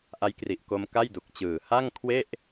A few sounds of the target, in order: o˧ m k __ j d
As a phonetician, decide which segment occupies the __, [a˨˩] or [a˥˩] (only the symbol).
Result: a˥˩